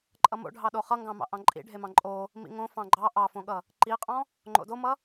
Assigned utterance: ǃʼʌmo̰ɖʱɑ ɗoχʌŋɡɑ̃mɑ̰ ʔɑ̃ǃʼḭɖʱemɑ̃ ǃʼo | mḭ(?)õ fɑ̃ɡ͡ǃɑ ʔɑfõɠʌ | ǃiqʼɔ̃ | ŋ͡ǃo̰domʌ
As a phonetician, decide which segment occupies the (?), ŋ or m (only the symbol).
ŋ